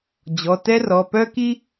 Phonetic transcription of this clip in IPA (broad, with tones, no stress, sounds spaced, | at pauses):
d͡ʑ ɔ˩˧˩ t ɛ˥ r ɔ˩˧˩ p œ˥ k i˥